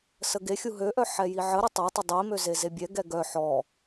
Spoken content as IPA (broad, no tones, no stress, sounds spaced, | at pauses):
s ə ɡ e xʲ u ɦ ø ʔ œ ħ ɛ j i ʕ ə ɾ ɪ tˤ ø tˤ ɪ dˤ i m ø z e z e bʲ ɛ ɡ ɛ ɡ œ ħ ɔ